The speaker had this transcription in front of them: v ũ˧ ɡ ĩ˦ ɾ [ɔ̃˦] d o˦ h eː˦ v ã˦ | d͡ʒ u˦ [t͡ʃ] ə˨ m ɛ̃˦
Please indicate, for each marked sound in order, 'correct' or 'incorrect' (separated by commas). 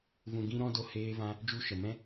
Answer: correct, incorrect